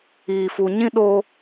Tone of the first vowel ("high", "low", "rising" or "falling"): low